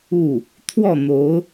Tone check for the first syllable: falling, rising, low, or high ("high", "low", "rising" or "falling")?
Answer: falling